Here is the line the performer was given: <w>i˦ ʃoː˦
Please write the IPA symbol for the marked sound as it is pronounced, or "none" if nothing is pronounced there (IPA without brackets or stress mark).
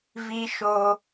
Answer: v